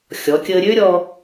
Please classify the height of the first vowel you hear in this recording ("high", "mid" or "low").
mid